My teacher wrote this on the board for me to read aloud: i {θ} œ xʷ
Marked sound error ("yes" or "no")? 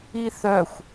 no